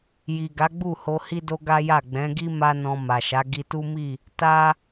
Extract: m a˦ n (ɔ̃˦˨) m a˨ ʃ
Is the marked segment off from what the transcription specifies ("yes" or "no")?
yes